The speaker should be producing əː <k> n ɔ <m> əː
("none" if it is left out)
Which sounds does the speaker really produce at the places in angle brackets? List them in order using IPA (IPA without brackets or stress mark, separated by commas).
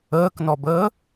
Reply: k, b